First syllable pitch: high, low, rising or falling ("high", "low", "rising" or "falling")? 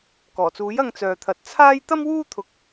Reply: low